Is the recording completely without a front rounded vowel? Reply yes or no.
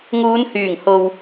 no